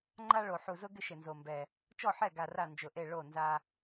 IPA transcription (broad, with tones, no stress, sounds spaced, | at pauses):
ŋ͡ǃ a˦ ɭ o˨˩ ħ u˨˩ z ʊ˦ ɡ ɪ˦ ʃ ɪ˨˩ n z o˨˩ m b ɛ˨˩ | t͡ʃ ɔ˥˩ ħ ɛ˥˩ ɡ a˨˩ r a˥˩ n d͡ʒ ʊ˨˩ ʔ e˥˩ ɭ o˥˩ n z a˦